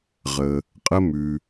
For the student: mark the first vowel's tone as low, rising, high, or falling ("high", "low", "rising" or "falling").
low